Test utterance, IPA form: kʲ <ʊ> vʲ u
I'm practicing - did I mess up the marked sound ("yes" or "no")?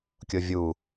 no